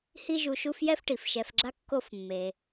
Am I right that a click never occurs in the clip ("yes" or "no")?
no